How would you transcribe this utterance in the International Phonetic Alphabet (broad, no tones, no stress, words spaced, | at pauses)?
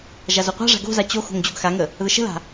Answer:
ʒazoqʷa̤ʐa̤ ɡo̤za t͡ɕo xo̤ŋd͡ʑoɡxaŋə | ðəʃə̤la̤